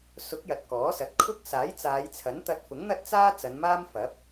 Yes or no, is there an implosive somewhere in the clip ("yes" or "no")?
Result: no